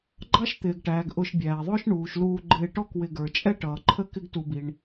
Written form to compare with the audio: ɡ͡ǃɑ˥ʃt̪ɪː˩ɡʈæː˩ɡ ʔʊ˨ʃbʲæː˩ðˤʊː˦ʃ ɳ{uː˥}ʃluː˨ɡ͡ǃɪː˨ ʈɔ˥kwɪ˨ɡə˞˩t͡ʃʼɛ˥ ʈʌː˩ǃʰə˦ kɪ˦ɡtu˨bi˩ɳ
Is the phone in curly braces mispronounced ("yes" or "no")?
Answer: yes